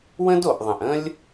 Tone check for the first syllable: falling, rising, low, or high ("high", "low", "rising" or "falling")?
high